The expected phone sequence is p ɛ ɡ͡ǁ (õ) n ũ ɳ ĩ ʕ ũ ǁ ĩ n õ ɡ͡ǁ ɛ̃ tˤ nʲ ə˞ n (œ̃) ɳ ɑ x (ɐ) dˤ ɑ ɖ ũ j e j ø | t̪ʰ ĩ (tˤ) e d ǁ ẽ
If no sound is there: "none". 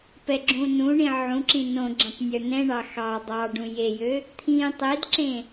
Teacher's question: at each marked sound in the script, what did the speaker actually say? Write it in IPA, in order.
ũ, ɛ̃, ɑ, tˤ

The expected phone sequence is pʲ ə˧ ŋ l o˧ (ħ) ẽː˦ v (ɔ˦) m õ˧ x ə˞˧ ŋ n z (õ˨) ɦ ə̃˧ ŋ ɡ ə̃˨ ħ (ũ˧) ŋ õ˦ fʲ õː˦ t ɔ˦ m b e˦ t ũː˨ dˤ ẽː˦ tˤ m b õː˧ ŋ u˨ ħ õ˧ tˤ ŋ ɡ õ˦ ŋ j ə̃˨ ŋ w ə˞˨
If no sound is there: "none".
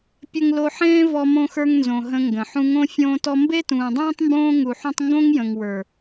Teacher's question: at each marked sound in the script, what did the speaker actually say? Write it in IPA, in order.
ħ, ɔ˧, õ˨, ũ˧

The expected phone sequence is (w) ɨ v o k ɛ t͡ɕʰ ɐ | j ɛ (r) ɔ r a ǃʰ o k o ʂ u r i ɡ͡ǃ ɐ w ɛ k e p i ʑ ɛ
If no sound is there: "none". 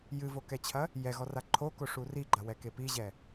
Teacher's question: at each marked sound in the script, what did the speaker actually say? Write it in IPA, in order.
j, ɣ

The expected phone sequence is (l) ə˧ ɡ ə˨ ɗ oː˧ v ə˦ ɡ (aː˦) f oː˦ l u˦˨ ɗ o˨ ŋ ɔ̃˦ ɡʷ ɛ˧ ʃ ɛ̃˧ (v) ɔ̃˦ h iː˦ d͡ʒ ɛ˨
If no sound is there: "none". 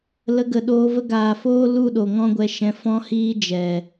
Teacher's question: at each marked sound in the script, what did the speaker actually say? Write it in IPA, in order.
l, aː˨, f

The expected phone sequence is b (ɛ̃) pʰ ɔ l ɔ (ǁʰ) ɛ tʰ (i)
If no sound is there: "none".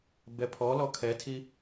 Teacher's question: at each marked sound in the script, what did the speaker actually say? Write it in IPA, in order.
ɛ, kʰ, i

